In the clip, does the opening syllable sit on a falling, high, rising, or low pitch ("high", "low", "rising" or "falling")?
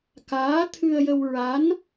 rising